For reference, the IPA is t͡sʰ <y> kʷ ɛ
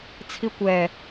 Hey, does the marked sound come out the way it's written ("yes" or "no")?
no